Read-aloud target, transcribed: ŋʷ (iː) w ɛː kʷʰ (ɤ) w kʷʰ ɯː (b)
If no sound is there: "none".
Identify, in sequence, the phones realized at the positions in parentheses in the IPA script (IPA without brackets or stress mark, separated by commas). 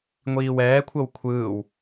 iː, ɤ, w